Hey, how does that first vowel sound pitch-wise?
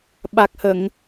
low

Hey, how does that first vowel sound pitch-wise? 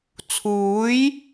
rising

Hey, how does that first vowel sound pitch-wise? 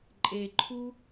low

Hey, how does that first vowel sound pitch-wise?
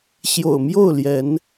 low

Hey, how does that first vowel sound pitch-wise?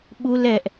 high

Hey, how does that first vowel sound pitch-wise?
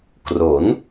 rising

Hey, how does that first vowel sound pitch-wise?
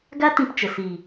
high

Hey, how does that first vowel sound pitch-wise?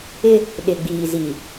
high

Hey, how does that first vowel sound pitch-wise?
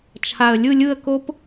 low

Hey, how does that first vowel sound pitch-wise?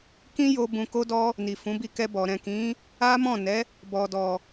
high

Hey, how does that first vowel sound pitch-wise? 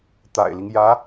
low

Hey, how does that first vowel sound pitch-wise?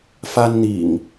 high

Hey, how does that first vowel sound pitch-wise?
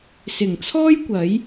low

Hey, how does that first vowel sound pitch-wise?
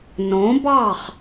rising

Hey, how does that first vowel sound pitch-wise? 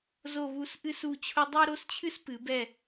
falling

